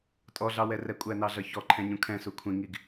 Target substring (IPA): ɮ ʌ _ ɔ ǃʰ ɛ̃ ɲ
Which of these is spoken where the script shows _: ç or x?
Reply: ç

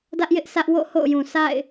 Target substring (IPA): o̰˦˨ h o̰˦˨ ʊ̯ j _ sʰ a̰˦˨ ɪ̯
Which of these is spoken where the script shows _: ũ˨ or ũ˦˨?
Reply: ũ˨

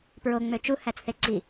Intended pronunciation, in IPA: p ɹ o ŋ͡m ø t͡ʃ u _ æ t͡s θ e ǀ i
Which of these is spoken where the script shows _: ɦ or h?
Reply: h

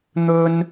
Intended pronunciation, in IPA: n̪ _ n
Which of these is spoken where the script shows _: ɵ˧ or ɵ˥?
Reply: ɵ˥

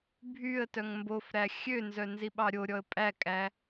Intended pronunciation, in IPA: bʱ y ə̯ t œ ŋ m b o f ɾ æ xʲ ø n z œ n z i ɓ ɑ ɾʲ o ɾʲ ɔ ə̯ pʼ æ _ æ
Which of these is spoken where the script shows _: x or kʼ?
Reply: kʼ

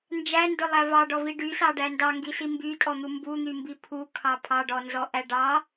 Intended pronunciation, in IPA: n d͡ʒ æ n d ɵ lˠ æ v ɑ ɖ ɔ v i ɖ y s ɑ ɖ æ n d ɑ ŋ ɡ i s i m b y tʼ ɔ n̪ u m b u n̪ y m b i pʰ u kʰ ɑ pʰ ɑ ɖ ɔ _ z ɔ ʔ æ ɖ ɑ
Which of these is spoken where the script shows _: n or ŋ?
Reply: n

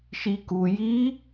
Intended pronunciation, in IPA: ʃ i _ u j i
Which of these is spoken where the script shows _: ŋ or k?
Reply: k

